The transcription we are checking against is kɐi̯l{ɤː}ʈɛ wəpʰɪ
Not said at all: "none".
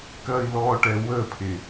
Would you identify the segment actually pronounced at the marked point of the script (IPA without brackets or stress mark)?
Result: ɔː